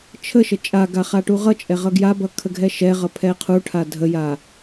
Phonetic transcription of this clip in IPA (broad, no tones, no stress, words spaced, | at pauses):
t͡ʃʰəʃə t͡ʃʼaɡa χaʈuʁʌt͡ʃʼɛ ʁʌɡjabʌ kʰəɡʱɛʃɛʁʌ pʰɛqʰuʈʰa dʱəja